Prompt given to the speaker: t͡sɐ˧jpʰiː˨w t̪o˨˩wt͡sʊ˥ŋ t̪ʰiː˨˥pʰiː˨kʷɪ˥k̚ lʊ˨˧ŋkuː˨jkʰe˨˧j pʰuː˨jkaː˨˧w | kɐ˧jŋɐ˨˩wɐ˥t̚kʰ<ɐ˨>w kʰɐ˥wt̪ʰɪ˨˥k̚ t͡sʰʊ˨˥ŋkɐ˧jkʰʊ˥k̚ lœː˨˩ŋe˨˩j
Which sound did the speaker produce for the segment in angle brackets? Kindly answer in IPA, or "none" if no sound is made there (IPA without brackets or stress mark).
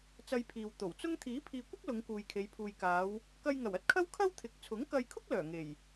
ɐ˥